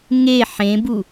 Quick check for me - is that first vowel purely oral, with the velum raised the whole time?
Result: yes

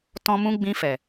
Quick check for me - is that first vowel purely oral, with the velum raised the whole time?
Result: no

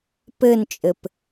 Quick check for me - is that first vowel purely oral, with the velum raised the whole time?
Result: yes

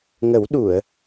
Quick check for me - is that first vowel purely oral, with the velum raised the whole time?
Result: yes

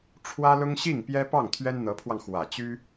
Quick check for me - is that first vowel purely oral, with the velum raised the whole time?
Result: yes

